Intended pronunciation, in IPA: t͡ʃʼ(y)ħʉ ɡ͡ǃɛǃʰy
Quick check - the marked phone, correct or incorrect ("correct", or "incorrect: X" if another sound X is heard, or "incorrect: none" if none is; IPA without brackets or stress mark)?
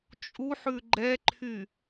incorrect: u